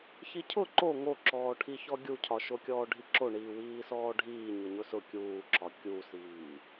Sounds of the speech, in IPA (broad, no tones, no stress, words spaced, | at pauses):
çicʰʊ ǃo ŋoǁɔːʈʰiçɔ ɡʲucʰɒʃokʲɔː ɖʱiǁoɳiː wiːsɔːɖʱiː ɲʊɲʊsʊ kʲuːǁɒ kʲusiː